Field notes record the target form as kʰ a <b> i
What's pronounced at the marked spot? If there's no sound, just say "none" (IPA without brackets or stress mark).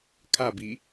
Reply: b